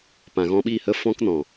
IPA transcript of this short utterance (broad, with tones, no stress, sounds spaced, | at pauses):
p ã˨ ɣ ɔ̃˧ ɓ i˦˨ h ə˦ f ɔ̃˦ k n ɔ̃˨